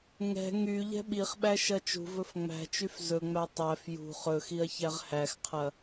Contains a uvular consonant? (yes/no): yes